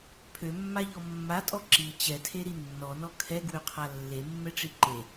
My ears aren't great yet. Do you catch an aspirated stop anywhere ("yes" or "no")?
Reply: yes